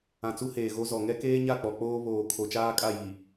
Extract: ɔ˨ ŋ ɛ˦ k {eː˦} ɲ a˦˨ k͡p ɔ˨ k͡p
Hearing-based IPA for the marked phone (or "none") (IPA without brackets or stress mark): eː˦